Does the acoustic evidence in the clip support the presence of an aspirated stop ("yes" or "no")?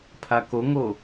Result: yes